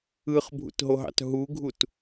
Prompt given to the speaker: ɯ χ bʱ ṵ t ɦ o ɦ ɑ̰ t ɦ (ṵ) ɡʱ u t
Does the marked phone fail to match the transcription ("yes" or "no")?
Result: yes